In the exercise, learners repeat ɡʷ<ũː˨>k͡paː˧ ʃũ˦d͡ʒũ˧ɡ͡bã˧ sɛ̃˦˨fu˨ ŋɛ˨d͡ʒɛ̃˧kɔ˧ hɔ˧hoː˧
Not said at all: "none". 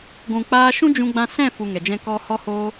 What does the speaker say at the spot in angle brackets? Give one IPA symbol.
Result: ũ˨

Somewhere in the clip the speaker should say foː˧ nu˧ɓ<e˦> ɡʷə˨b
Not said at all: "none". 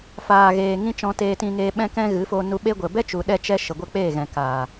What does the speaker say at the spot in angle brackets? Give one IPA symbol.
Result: e˦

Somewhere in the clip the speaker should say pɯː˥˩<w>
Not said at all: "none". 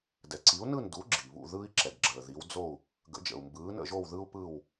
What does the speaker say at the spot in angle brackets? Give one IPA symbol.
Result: w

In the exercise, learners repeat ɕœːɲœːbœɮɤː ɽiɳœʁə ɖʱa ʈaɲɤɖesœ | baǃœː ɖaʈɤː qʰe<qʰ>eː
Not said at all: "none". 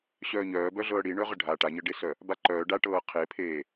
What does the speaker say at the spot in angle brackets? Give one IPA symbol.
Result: pʰ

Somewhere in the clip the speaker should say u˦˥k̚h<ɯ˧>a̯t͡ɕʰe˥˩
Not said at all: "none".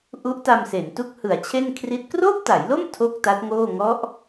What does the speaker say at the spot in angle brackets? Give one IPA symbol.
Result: ɯ˩˦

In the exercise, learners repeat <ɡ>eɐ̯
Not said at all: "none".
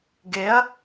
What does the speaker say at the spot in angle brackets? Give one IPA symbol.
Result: ɡ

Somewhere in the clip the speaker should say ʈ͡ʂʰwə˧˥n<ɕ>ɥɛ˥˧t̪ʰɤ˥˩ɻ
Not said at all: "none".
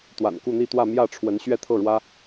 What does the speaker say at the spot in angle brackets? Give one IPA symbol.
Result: ɕ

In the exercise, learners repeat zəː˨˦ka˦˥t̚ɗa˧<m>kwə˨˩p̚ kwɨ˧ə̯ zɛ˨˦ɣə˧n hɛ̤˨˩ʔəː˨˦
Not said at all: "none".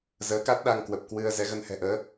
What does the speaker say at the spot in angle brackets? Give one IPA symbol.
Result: ŋ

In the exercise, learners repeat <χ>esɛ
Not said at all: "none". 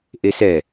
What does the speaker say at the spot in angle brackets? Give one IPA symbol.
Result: ʔ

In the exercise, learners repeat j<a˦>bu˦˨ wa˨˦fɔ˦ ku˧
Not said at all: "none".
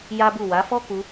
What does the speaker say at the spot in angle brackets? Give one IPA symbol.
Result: a˦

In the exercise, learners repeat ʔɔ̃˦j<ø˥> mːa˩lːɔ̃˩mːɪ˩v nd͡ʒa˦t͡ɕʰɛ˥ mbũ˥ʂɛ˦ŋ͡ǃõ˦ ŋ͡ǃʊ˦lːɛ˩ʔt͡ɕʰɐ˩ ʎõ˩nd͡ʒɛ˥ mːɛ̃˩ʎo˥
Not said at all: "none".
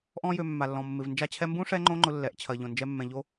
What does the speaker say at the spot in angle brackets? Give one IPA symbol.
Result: ø˨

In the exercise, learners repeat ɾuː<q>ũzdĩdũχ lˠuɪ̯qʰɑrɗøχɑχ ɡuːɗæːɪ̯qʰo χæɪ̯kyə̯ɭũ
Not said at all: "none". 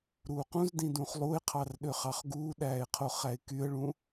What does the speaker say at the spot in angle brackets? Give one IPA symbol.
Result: q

